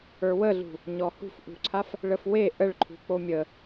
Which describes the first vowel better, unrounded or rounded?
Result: unrounded